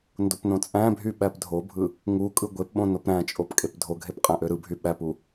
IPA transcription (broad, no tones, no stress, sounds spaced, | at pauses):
n d o p n õ t͡sʼ æ̃ bʱ y ɓ æ p dʱ o bʱ ɯ | ŋ u kʼ ɯ ɡʷ e p ɓ õ n o p ɾ æ̃ t͡ʃʼ o p kʼ e p dʱ o ɡʱ e p qʼ æ̃ ʔ ø ɾ ɯ bʱ y ɓ æ p u